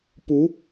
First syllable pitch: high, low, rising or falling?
rising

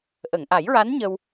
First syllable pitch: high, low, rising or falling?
low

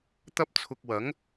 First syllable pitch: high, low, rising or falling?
high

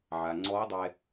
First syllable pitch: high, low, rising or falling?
low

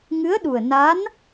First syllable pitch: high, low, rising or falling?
rising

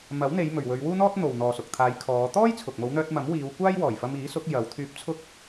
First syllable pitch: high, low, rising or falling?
rising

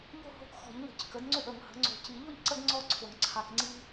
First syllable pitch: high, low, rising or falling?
falling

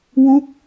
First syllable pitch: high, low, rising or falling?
falling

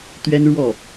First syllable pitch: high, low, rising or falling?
high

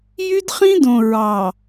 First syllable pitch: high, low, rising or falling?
high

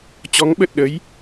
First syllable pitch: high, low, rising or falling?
rising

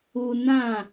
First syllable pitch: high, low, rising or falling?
low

